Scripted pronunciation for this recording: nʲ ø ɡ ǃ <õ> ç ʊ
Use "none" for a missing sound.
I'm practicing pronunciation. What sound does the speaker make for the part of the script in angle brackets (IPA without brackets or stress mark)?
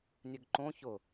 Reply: õ